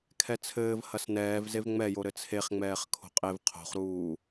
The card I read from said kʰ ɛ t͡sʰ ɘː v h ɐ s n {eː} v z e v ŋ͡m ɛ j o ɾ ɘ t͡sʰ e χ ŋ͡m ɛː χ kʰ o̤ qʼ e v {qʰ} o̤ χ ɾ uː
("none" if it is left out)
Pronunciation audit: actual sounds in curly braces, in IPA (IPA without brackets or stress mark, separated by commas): ɛː, qʰ